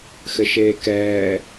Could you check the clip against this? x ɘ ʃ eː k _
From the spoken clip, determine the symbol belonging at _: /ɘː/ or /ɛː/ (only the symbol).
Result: ɛː